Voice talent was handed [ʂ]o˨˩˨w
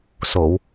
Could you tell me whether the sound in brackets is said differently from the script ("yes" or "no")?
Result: yes